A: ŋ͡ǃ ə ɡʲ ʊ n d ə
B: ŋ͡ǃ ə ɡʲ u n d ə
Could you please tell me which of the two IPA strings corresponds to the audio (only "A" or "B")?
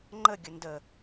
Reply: A